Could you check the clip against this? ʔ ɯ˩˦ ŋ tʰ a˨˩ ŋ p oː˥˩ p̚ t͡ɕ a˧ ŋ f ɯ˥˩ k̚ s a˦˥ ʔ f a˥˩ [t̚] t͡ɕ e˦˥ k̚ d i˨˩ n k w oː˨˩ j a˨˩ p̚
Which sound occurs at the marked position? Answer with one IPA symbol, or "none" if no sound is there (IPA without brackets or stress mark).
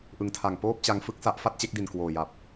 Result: t̚